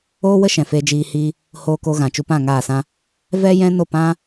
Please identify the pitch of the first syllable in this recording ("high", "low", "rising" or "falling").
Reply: high